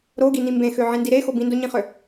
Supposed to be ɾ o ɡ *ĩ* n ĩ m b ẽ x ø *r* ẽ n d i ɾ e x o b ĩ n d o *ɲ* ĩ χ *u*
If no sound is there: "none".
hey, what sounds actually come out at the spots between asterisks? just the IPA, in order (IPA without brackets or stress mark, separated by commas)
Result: i, ʕ, ɲ, ø